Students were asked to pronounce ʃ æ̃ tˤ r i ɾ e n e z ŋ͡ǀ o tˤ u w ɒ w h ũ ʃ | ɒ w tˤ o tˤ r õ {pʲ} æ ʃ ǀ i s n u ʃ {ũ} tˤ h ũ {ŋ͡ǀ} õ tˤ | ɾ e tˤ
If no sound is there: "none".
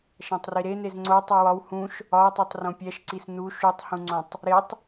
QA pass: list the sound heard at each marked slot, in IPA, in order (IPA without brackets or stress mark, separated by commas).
pʲ, u, ŋ͡ǀ